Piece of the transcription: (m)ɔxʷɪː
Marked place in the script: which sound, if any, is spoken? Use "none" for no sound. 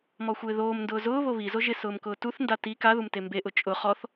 m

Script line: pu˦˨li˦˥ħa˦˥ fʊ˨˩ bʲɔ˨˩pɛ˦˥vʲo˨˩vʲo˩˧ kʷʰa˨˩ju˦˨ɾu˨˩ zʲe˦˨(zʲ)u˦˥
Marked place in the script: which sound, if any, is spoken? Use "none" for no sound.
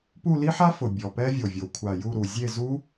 z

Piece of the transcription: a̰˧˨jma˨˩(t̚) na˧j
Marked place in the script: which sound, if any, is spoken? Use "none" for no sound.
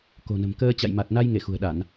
t̚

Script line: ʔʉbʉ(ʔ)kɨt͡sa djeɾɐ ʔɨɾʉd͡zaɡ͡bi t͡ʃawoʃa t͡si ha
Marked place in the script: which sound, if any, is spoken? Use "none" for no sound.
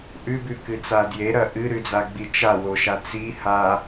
none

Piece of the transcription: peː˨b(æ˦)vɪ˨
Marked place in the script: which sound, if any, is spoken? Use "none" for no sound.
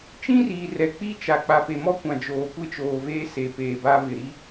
a˦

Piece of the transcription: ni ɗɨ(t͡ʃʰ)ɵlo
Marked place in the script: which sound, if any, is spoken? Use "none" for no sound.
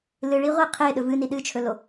t͡ʃʰ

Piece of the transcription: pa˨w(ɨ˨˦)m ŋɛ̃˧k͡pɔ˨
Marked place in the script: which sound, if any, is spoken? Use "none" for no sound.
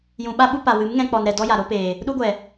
ɨ˨˦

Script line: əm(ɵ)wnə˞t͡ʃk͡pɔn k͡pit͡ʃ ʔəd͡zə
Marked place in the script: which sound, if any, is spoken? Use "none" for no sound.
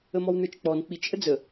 ɔ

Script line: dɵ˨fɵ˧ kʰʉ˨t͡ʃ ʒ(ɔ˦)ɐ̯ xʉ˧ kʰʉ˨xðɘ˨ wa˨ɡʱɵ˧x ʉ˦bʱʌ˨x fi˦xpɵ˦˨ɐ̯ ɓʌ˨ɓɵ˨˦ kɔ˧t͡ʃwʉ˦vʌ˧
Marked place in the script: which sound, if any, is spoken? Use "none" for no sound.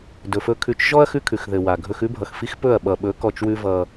ɔ˦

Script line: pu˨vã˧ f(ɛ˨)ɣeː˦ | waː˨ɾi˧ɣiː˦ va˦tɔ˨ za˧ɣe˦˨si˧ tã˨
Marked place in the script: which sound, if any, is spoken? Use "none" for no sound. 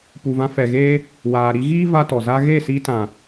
ɛ˨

